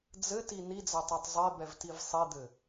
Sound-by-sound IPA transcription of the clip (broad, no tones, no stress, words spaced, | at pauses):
d͡zɘti nid͡zɛtˤetˤ zˤebɛvtiv sˤid̪ɘ